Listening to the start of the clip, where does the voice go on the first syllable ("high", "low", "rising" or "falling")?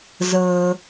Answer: high